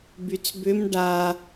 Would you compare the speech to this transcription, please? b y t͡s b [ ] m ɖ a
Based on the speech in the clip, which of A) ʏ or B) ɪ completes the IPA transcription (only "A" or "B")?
A